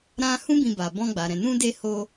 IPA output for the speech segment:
ɾ ã˦ h ũ˦ b ĩ˧ b a˨ b ɔ̃˧ ɡ͡b a˨ ɾ ɛ̃˨ n ũ˧ d e˧ h o˧

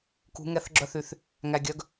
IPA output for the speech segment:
k ṳ˧˥ ŋ ɛ˧˥ θ ɡ͡ǁ œ˥ θ y˧ θ | ŋ æ˧ ɡʲ œ˧˥ ɡ

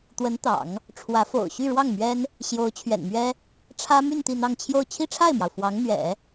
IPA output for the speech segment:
t̪ w ə˧˥ n t̪ ɑ̰˨˩˦ ŋ | ʈ͡ʂʰ w ä˧˥ f o̰˨˩ ʊ̯ ɕ y˥˧ ɻ w ɑ˥˩ ŋ m ɥ ɛ˥ n | ɕ j o˧˥ ʊ̯ t͡ɕʰ ɥ ɛ̰˨˩ n m ɥ ɛ˥ | ʈ͡ʂʰ ä˥ m y˥˧ n t̪ i˥˧ n̪ ɑ˥˧ ŋ t͡ɕʰ j o˥˧ ʊ̯ t͡ɕʰ i˥˧ ʈ͡ʂʰ a˥˩ ɪ̯ m j ɑ˩ ʊ̯ f w ɑ˧˥ ŋ n̪ ɥ ɛ̰˨˩˦

